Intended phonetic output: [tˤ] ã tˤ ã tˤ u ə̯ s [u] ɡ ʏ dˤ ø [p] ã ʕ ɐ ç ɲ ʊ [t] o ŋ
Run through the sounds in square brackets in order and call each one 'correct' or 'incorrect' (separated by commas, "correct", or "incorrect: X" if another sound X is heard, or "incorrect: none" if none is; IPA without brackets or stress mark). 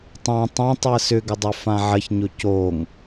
correct, incorrect: ʏ, incorrect: f, incorrect: c